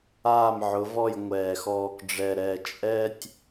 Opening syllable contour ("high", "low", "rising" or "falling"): falling